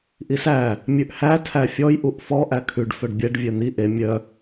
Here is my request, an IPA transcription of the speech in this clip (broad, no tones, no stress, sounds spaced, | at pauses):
ʔ i s æ | mʲ ʉ ʔ h æ tʰ æ fʲ ɔ j ʔ u ʔ f ɔ ʔ æ kʰ ʉ ɖ f œ ɖ bʲ ɛ ɖ vʲ œ n̪ i ʔ e mʲ œ